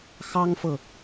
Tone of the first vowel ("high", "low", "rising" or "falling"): high